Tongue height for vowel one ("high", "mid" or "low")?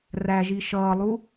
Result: low